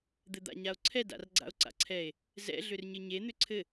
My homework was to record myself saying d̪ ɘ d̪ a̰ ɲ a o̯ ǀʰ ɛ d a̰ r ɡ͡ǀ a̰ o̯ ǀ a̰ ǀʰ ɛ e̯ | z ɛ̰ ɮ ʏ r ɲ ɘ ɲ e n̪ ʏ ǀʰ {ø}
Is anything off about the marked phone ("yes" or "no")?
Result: yes